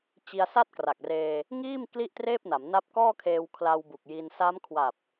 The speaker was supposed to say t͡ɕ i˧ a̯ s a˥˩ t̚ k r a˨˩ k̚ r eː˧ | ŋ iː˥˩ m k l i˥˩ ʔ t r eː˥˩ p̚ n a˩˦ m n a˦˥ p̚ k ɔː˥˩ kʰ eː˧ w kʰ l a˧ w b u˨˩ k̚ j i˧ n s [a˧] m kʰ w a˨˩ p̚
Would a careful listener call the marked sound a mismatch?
yes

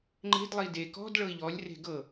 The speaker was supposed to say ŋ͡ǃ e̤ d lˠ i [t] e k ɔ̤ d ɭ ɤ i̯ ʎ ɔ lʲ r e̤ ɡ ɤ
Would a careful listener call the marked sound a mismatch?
yes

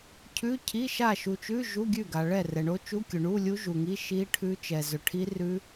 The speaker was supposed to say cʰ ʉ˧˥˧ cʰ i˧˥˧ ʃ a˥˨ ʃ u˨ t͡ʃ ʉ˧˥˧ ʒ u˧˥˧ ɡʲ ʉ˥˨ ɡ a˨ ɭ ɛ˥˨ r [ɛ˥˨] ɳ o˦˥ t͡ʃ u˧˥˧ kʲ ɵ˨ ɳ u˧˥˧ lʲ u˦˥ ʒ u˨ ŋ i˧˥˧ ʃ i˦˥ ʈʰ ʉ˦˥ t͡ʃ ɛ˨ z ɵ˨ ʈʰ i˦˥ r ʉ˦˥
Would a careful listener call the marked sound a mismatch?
yes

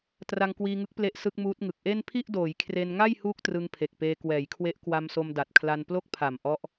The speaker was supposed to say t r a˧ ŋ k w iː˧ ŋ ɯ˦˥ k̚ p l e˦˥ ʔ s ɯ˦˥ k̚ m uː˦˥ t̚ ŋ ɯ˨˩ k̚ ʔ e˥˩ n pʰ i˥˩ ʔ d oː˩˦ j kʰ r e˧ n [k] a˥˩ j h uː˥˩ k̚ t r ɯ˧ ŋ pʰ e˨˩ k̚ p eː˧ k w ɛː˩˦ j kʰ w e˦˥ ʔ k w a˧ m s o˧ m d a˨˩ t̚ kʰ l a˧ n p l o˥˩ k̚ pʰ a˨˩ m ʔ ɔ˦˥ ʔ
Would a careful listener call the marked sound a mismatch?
yes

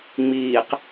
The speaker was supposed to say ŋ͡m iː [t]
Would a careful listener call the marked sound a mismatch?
yes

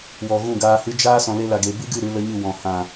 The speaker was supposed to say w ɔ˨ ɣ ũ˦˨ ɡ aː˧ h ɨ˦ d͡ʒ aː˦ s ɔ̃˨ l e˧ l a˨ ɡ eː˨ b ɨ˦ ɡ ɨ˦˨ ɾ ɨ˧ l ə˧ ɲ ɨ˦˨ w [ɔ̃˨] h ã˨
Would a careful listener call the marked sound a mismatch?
no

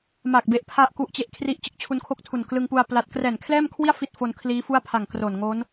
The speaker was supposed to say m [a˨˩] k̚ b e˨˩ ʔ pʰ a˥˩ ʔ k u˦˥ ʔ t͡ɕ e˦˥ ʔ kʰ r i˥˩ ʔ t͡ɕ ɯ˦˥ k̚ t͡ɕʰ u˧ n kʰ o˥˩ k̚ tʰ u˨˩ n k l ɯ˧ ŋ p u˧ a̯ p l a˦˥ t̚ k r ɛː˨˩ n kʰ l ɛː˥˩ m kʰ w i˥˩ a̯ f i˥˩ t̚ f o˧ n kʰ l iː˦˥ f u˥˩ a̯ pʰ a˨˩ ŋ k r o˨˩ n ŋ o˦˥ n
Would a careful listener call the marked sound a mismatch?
no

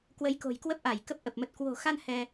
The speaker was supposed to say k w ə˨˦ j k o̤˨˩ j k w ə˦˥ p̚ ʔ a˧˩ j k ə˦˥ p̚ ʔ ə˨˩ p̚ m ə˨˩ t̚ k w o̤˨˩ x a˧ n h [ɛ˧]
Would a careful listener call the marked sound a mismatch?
no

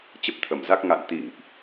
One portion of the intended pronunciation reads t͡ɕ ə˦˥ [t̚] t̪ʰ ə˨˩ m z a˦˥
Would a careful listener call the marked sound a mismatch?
yes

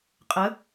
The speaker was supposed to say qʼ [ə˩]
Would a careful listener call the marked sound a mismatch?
yes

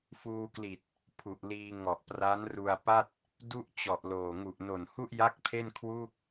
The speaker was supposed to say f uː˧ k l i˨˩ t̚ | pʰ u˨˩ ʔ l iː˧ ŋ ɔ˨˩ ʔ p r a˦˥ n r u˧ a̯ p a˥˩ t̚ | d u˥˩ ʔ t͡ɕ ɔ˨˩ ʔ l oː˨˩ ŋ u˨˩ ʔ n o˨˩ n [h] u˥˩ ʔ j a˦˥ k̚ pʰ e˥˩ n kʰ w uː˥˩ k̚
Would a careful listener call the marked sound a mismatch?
no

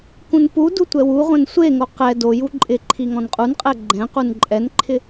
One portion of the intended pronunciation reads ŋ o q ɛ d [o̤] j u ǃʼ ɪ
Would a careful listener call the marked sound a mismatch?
yes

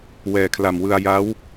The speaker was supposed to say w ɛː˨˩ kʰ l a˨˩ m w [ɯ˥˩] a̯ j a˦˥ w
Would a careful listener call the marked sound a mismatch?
yes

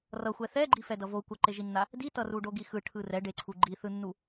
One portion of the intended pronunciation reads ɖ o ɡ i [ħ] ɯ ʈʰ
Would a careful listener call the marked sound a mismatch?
yes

